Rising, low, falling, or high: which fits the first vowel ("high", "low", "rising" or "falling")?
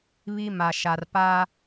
high